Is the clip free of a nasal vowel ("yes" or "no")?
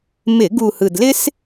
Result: yes